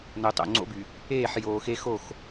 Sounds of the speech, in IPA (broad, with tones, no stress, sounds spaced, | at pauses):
n o˨ tˤ o̰˨ ŋ͡ǀ o̰˦ b y˨ | eː˦˨ ħ j oː˨ x e˦ x o˦˨ x